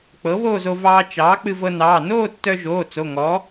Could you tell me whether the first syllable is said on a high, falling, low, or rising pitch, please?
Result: rising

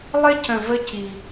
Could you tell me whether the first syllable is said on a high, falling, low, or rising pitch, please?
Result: high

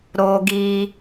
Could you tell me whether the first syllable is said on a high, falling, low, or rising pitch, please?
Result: high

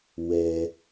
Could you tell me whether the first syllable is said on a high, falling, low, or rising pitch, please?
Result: low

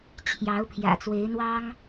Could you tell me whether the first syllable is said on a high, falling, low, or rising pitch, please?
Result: rising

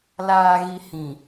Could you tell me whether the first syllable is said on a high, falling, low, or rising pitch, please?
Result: low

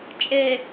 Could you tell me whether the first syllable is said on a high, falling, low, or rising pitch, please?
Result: low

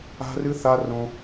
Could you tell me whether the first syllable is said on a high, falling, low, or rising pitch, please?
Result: high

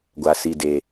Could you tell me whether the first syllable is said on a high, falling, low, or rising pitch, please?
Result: high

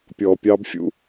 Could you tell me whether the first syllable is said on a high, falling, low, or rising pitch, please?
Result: low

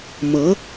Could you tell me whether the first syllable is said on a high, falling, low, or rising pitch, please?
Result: rising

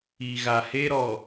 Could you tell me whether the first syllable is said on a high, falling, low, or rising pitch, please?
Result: low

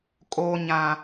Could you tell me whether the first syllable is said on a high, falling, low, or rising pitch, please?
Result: low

